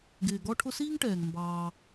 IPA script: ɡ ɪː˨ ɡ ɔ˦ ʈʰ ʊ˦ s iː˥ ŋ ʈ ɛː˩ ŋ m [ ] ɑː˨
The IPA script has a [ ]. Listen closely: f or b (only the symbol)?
b